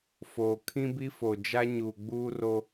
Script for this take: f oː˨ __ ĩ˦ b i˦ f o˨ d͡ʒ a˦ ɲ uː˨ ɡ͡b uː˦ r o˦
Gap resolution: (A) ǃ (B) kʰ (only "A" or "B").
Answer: B